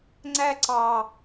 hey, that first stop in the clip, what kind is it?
click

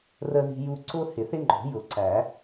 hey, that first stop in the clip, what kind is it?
click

